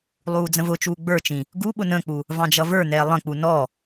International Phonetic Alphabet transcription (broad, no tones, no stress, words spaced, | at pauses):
lˠuːd͡zə̃vʊt͡ʃuː ɡ͡bə˞t͡ʃĩ | ɡu ɓʊnə̃k͡pu | vɑ̃d͡ʒʌvə˞nɛː lˠə̃k͡pu nɔ